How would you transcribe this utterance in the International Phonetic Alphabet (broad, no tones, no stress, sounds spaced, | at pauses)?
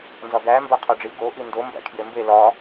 n z ɒ ɡ æ m b æ qʰ ɒ ɖ͡ʐ i ɡ o ʔ i n d o m b æ̰ kʰ j e m b e l ɒ